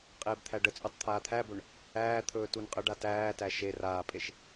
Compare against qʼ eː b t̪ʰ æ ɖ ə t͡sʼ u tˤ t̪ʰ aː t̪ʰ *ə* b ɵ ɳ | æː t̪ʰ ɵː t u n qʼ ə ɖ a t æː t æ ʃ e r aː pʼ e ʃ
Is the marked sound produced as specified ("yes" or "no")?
no